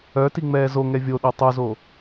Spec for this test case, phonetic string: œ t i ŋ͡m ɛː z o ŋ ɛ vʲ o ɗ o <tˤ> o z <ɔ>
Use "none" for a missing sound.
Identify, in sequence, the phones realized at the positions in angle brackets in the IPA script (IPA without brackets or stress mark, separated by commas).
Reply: tˤ, o